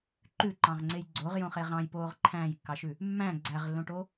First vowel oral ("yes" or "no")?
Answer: yes